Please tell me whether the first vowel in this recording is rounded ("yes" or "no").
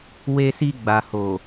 no